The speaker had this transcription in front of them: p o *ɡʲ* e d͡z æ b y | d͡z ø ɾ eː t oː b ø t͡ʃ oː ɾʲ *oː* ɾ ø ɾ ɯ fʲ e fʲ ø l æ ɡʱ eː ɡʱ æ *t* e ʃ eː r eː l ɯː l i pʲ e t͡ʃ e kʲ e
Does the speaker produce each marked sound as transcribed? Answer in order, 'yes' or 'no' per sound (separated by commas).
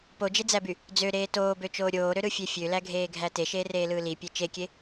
no, yes, yes